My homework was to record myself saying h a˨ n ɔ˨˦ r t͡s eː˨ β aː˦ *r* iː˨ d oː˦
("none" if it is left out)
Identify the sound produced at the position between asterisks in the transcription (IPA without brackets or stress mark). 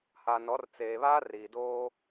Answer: r